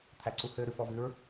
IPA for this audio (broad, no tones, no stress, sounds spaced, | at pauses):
t̪ʰ æ ǀ u h ø ɾ ʉ f ɔ v ʉ ɹ